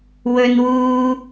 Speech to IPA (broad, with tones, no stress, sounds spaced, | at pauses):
w ɵ˥ n w uː˥